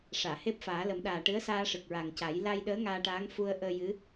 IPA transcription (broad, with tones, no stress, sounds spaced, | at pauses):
ʂ aː˨˩˨ h e˦˥ p̚ f aː˨˩˦ l ə˨˩˦ m ɗ aː˨˩ ʈ ɨ˧˥ ə̯ s aː˧ ʂ ɨ˨˩ k̚ ɹ a˨˩ ŋ c a˨˩˦ j l a˧ j ɗ əː˧˥ ŋ aː˧ ʈ aː˧˥ ŋ f u˧ ə̯ ʔ əː˧ j ɨ˧˥